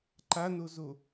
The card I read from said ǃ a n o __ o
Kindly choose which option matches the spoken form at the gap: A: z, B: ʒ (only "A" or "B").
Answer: A